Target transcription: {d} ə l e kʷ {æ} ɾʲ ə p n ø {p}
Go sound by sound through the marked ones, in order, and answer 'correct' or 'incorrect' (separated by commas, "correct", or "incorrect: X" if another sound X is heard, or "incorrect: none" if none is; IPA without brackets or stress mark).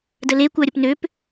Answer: correct, correct, correct